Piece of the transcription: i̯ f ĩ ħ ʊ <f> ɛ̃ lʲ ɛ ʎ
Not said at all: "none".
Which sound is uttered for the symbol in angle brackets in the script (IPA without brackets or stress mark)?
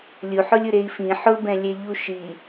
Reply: b